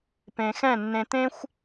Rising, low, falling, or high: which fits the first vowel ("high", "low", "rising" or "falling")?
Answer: low